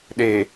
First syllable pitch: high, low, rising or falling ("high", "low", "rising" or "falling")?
low